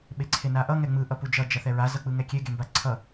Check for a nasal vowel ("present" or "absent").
absent